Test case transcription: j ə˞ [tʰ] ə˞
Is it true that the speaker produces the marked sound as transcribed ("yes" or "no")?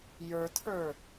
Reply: yes